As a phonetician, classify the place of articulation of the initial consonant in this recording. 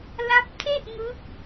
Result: alveolar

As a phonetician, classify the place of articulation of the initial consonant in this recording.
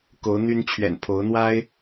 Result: velar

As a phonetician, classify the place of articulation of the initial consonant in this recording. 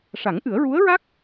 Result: retroflex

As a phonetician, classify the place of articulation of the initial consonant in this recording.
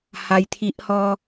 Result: glottal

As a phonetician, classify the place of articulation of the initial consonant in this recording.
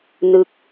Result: alveolar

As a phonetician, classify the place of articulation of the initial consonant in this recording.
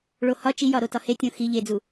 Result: retroflex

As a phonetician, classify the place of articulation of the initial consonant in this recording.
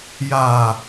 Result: palatal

